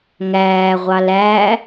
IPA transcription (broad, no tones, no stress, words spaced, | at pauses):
ŋæːʁʷɑl æː